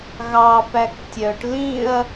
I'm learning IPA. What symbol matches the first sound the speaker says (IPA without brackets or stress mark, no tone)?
ɣ